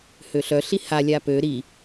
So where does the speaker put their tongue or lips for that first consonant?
throat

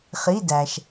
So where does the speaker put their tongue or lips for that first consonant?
uvula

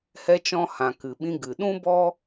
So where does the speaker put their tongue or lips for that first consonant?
throat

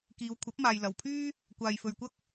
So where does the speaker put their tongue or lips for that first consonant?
velum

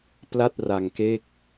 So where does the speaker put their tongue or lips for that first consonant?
lips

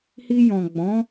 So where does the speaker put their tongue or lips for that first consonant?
throat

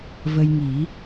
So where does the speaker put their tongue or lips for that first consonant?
lips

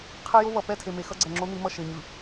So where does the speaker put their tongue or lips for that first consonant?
uvula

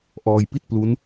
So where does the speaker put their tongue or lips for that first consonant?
throat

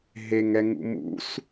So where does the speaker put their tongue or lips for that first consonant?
throat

